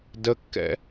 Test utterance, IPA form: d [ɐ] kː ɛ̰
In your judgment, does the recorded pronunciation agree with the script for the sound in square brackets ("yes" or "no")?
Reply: no